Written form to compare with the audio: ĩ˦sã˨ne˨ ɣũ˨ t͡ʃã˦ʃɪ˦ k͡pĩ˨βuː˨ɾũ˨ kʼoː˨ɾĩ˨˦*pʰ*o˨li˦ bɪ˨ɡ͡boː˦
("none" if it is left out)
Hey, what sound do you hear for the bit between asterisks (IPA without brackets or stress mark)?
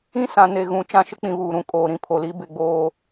pʰ